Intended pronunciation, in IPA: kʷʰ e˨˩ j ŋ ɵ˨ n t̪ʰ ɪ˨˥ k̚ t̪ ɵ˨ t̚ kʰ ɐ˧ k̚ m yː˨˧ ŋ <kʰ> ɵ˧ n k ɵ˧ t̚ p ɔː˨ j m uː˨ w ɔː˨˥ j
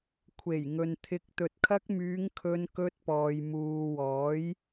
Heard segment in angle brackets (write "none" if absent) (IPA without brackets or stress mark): kʰ